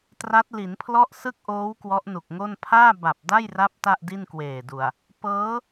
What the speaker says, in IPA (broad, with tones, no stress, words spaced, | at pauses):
tra˦˥t̚li˩˦npʰlɔ˥˩ʔ sɯ˥˩k̚ʔoː˦˥w kwɔ˦˥ʔnu˨˩k̚ŋo˥˩n pʰaː˥˩ba˨˩p̚da˥˩jra˦˥p̚ ta˥˩ʔdi˥˩nkweː˨˩du˨˩a̯ | pɤː˦˥